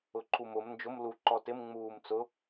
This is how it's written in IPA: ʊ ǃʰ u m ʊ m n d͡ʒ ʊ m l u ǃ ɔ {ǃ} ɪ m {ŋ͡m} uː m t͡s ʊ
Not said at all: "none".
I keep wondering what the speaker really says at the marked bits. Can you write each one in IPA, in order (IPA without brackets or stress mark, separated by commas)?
t, ŋ͡m